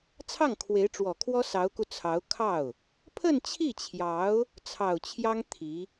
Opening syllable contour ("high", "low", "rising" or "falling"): falling